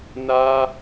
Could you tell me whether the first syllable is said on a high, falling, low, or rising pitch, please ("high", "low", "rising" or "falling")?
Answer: high